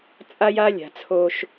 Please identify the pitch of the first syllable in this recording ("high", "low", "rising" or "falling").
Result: high